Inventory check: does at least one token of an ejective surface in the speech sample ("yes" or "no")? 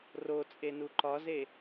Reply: yes